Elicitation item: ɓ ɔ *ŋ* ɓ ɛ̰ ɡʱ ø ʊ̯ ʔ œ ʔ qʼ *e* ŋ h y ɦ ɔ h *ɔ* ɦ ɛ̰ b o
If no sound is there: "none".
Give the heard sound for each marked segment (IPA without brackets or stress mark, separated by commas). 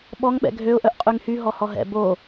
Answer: ŋ, y, ɔ